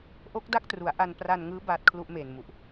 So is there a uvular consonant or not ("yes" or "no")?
no